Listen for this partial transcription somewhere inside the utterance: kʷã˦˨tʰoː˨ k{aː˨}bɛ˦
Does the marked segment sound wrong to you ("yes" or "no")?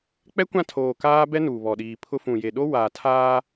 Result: yes